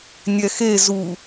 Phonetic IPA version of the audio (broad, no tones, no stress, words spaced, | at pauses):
nʲɛxe zu